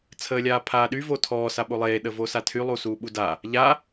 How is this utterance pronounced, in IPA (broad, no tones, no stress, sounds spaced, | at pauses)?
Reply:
t͡sʰ əː lʲ aː pʰ aː ɗ y v o tʰ ɔː s a ɓ o lˠ eː ɗ ə v o s a tʰ y lˠ u s uː ɓ u d a | ʎ a